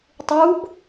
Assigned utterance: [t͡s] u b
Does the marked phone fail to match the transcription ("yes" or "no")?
yes